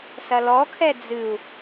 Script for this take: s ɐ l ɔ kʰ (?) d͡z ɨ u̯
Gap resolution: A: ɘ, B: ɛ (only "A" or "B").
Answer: B